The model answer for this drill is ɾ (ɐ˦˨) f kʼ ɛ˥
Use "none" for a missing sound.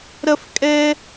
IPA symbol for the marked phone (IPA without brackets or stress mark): ɐ˥